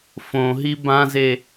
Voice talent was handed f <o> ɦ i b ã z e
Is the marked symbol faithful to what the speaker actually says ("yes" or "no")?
no